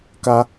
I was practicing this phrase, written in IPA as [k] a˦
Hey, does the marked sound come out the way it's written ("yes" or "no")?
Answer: yes